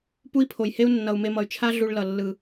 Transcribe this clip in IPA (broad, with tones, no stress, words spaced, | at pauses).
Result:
pu˦i̯pʰo˨jhe˦u̯ nːʌ˨u̯me˧mʌ˨y̯t͡ʃʰa˦ ɮu˧ɭlʌ˨ lːɯ˨